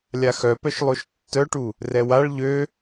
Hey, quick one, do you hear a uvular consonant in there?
no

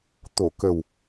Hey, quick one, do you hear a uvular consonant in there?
no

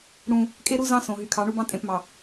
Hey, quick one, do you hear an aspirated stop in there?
yes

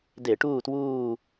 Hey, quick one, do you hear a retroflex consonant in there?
yes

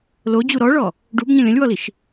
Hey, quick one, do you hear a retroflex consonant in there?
yes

